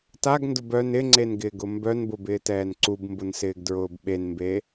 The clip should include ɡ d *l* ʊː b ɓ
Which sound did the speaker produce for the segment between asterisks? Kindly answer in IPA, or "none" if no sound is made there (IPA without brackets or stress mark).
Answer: ɹ